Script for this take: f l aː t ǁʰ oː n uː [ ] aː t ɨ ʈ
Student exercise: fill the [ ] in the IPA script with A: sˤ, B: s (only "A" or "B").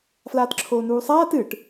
A